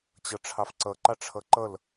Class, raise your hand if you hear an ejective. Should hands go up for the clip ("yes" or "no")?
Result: no